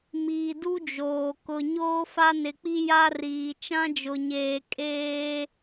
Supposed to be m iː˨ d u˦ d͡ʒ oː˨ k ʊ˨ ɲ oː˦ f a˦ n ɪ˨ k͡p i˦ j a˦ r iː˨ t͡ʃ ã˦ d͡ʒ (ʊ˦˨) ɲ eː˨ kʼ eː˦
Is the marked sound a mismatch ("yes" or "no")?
yes